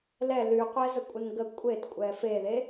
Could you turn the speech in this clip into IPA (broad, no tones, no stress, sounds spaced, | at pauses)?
l ɛ l y qʷ ɛ z ə kʷʼ ɪ n ɡ ə kʷʼ e t kʷʼ ɛ f e ð e